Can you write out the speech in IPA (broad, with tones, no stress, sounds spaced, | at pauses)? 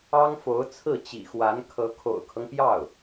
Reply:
ɑ˥ ŋ f o˧˥ ʊ̯ t͡sʰ ɹ̩˥˩ t͡ɕ ḭ˨˩ x w a˧˥ n kʰ ɤ˧˥ kʰ o̰˨˩ ʊ̯ kʰ ɤ˦ ŋ p j ɑ˥˩ ʊ̯